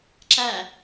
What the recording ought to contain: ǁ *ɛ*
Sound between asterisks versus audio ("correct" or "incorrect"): incorrect